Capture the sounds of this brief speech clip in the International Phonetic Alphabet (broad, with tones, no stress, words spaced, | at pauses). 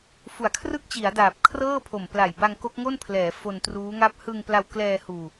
fu˩˦a̯kʰrɯ˥˩k̚t͡ɕi˩˦a̯daː˨˩p̚ kʰrɤː˥˩pʰo˨˩mpla˨˩j ba˧ŋko˦˥k̚ŋo˥˩npʰlɛː˩˦ fo˧ntruː˦˥ŋa˥˩p̚ hɯ˧ŋpla˧wklɛː˧ huː˧